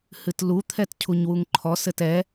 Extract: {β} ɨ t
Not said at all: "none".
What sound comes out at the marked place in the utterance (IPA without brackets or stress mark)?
h